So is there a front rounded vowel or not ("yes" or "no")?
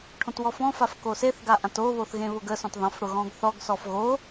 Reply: no